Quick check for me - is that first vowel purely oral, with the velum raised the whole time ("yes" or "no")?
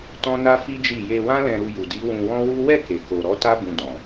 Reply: no